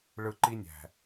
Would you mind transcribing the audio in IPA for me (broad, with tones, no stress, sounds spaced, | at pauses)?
ɭ ɯ˧ ǃ i˦ nʲ æ̤˨